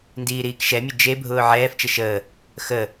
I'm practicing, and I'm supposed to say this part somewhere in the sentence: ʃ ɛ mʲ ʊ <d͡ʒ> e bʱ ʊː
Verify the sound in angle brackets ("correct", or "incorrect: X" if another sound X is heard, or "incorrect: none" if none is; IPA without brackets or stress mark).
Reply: correct